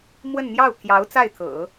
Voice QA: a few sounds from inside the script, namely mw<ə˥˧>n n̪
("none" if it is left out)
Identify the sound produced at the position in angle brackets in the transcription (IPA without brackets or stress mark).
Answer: ə˥˧